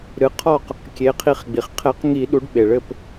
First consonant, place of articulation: alveolar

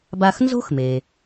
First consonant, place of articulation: labial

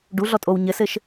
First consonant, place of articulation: retroflex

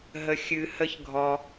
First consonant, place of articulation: glottal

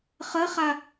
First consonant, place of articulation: uvular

